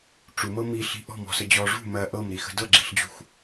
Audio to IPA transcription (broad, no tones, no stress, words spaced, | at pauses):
ʈ͡ʂumɤ miɬi̤ ʔɔ̤mɔ̤sə d͡ʑɔ ʐṳ mɜ ʔɤmɾixə̤ dɤɡ͡ǁi̤ɬd͡ʑṳx